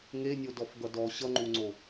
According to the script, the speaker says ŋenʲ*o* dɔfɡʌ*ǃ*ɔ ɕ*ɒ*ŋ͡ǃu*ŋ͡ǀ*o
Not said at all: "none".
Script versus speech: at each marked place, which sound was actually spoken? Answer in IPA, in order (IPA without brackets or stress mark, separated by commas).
o, d, ʌ, ŋ͡ǀ